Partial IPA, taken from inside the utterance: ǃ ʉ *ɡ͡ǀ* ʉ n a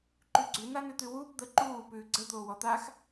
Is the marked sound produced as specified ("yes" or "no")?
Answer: yes